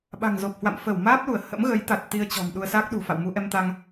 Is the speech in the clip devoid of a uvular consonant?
yes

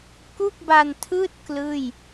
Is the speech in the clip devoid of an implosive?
yes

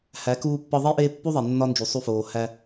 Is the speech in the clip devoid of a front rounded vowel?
yes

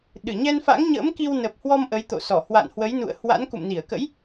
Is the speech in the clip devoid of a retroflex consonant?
yes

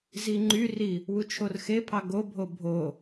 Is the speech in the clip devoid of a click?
no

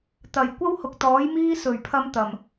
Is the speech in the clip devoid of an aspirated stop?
no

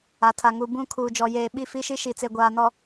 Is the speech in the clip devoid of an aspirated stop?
no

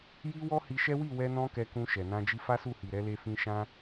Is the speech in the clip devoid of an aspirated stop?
yes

